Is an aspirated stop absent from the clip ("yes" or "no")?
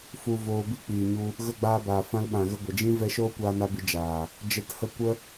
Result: yes